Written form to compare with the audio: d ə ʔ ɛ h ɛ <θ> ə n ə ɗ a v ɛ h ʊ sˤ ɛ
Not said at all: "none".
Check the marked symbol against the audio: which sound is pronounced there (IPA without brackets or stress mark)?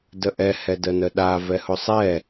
d